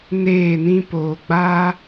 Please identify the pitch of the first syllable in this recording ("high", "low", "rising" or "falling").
falling